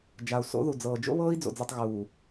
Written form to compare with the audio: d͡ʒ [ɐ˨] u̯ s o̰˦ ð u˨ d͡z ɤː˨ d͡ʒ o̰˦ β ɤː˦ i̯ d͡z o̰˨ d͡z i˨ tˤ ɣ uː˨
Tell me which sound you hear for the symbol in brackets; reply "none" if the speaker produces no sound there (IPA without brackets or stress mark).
a˨